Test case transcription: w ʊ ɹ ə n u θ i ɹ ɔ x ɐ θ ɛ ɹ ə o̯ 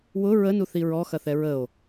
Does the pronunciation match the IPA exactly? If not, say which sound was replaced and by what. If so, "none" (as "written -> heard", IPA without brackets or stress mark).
none